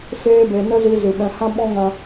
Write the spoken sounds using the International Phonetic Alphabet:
feː˧be˨ nə˦zi˧ zɨ˨ɓɛ̃˧ hã˦ɓɔ̃˦ŋã˧

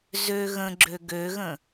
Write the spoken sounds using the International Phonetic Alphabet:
zø ɣə̃ɡ͡ǁø ɡøɣə̃

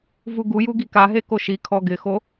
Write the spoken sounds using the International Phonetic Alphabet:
vuɡuju ɡikaɦe koʃikʰɔ ɡɪxo

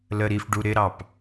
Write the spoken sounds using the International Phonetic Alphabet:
ləɾifɖu ɾɪɾɑp

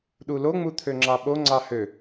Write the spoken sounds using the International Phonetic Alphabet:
ɗuloŋ͡mu t̪ʰøŋ͡ǁɑɓo ŋ͡ǀɑhø

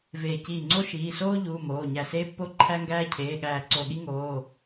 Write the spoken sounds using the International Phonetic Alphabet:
veː˧˩ ciː˧˩ŋ͡ǀo˥ ʃiː˩˧˩soː˥ ʎuː˩˧˩ moː˩˧˩ ɲæ˧˩seː˥pːo˥ ǃʰæ˥ŋɡæː˥ cʰeː˩˧˩ɠæː˧˩ ǀo˧˩ɠi˥ŋoː˩˧˩

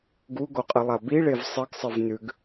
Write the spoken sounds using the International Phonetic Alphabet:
ɡuɡoqʼɨlˠa biɭev sˤɨɡsˤɨv nʉɡ

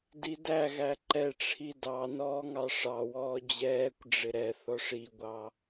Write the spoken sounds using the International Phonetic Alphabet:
didæɣæ ǃɛʈ͡ʂʰi dɑ nɔːŋɑʂɑwɔː d͡ʑɛːkʷɖ͡ʐɪ ɾɛ θɔʂiɡʷɑ

